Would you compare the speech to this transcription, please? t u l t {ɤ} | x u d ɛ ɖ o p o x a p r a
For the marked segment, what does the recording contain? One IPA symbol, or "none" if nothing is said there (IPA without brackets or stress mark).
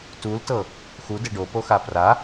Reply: ɤ